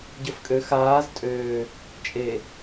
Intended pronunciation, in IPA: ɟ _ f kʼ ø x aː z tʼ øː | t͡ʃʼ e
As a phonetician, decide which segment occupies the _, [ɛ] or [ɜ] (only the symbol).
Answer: ɜ